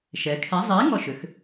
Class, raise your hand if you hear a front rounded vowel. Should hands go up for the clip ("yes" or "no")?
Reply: yes